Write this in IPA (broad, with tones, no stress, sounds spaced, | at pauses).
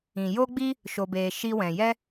ĩ˨ j o˦ ɡ͡b i˦ | ʃ o˧ b eː˧ ʃ i˦ w ɛ̃˨ j ɛ˦